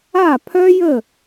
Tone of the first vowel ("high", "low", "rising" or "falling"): falling